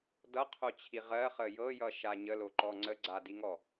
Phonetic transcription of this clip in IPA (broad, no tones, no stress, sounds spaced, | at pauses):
d ʌ qʰ o t͡ɕʰ i ʁ ɜ χ ə j ɤ j ʌ ʃ a ɲ ə l o ǃ ɔ ŋ͡ǀ ə ɡ͡ǀ a d i ŋ ɔ